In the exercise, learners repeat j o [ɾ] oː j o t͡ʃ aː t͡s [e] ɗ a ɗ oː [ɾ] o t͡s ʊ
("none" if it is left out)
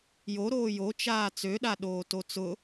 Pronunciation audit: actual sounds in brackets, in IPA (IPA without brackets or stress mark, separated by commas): ɾ, ø, t